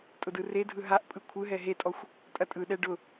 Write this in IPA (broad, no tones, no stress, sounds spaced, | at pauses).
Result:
tʼ ʊ d ɯ r e dʱ ɯ ɦ a ʔ pʼ ɯ kʷʰ ɯ ɦ ɛ ɦ e tʼ ɔ xʷ | tʼ ɐ tʼ ɯ ɗ ɛ ɖ ʊ